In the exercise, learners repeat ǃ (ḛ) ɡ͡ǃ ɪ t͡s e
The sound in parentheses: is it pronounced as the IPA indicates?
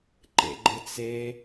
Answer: yes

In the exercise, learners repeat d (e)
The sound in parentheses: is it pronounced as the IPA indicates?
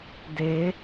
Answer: yes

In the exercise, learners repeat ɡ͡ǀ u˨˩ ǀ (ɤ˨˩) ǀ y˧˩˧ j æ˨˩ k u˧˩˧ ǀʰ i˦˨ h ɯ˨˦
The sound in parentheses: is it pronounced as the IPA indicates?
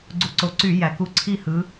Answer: no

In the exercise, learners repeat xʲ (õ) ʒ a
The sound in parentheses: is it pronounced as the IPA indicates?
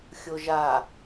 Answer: no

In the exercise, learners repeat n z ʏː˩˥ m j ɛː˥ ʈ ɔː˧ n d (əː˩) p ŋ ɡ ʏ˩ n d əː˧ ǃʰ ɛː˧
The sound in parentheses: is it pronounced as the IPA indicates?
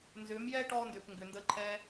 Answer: no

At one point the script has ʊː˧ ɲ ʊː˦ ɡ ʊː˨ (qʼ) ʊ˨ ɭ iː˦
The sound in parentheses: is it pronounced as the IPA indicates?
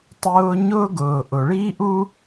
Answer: no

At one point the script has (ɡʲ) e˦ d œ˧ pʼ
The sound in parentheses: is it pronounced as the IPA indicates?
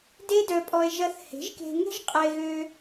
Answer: no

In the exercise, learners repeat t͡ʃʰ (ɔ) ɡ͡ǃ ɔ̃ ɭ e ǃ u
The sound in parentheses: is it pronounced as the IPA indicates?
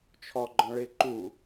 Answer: yes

